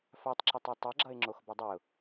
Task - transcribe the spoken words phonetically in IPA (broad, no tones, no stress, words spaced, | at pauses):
fatˤǁʌtˤ atˤʌɡ͡ǁʌɪ̯ ŋ͡ǁoxbʌdˤeʊ̯